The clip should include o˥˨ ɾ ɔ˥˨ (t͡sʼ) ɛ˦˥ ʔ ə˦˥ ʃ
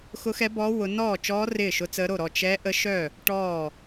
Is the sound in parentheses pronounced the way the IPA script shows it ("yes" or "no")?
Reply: no